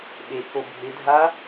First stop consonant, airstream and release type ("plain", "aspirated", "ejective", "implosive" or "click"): implosive